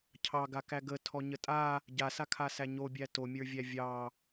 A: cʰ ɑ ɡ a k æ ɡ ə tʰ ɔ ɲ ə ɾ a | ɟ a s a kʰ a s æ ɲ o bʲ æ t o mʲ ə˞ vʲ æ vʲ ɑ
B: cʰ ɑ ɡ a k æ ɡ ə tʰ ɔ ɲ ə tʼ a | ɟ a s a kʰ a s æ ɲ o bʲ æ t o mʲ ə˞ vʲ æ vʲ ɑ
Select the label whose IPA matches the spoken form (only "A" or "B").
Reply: B